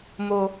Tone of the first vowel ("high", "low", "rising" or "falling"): low